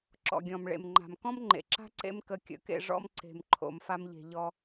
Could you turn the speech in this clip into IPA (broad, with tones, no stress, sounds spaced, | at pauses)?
ǁ ɔ̰˨ ɡʲ ɔ̃˨ m ɭ ḛ˨ m ŋ͡ǃ a̤˨ m k ɔ̃˦ m ŋ͡ǃ ḛ˨ ǁ a̤˦ ǀ ḛ˦ m k ə˧ kʲ ə̰˨˦ k ḛ˧ ʐ ɔ̰˦ m ǀ e̤˧ m ǃʰ o̰˧ m f a˦ m ʎ e̤˧ ʎ ɔ˧